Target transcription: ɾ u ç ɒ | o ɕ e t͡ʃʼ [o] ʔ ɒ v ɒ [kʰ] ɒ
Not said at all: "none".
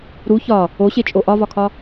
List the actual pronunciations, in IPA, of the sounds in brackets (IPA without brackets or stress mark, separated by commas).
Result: o, kʰ